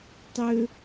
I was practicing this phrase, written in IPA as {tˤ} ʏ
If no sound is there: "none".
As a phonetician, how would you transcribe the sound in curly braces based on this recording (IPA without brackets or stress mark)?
tˤ